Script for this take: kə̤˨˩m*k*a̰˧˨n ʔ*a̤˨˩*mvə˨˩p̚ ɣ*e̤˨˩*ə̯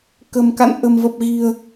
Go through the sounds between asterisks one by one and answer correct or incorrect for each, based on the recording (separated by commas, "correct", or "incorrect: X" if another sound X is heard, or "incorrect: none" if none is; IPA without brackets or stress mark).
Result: correct, incorrect: ə̤˨˩, incorrect: i̤˨˩